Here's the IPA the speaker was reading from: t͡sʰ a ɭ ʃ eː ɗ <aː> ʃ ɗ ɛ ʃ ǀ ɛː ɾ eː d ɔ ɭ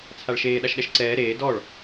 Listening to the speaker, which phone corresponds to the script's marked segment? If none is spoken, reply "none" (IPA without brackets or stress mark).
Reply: a